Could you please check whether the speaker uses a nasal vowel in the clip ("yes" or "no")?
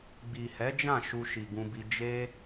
yes